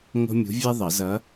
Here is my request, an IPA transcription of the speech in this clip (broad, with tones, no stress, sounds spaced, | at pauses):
ŋ o̤˥ mʲ ṳ˧˥ vʲ ɛ˥ ðˤ ʌ˨˩˦ z ʌ˧˥